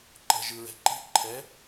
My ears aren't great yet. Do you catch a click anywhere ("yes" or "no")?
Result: yes